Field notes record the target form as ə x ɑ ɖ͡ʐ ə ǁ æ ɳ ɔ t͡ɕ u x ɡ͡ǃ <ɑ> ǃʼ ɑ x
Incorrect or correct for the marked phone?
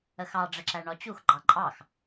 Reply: correct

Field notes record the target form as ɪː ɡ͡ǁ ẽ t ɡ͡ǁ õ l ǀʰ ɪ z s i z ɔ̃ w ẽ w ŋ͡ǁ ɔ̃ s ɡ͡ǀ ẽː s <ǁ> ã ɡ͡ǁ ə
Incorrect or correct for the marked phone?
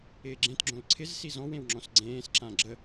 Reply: correct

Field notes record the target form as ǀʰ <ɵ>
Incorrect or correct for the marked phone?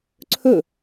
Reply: correct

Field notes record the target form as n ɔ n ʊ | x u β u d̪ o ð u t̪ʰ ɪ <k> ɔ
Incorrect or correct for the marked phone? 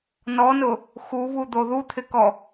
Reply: correct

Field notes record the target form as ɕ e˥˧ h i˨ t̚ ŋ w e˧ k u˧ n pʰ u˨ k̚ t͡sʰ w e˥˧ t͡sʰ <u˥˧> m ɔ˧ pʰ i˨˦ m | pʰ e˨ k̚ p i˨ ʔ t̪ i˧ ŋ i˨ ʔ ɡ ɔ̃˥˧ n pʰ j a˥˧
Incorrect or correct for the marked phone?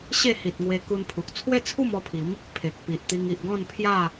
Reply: correct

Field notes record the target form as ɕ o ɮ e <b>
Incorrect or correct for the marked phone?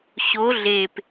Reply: incorrect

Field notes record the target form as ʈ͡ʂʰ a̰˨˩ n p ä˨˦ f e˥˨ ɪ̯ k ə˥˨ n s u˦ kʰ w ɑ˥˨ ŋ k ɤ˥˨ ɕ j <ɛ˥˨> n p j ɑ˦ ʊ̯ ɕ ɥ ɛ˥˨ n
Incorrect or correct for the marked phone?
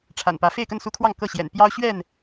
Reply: incorrect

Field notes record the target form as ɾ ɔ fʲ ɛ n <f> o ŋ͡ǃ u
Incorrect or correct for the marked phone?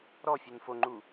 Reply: correct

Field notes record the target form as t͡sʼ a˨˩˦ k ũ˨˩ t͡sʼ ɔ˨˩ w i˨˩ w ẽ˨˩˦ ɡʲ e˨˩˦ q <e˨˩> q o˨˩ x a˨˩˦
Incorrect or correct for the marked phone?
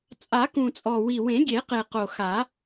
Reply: correct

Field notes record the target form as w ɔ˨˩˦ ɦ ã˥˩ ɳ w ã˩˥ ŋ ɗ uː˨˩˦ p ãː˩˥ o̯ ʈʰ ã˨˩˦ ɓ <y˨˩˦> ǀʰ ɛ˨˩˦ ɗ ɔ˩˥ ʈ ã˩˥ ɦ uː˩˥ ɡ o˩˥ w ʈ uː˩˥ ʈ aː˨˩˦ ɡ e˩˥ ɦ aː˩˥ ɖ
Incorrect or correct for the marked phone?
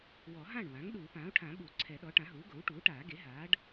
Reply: incorrect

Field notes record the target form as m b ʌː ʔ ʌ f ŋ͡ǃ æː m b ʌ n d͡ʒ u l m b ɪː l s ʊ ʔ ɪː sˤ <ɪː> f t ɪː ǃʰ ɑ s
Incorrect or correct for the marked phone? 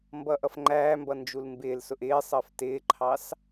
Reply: incorrect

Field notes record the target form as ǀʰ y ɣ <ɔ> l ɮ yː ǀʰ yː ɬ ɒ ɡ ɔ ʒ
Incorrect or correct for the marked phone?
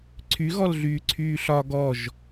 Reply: correct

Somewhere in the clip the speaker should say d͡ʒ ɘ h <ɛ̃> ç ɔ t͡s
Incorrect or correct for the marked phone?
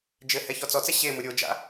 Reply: incorrect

